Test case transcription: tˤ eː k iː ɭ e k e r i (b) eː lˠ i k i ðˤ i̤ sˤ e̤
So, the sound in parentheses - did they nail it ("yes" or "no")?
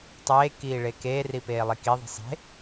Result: no